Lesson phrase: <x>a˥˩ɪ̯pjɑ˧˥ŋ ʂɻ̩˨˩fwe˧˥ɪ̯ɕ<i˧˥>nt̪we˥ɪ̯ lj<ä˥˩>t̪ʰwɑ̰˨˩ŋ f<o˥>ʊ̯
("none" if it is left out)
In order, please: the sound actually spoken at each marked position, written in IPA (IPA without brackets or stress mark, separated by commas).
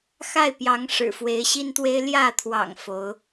x, i˥, ä˥˩, o˧˥